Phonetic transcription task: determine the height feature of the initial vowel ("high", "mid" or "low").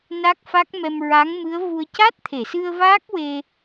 low